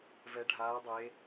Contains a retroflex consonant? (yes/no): yes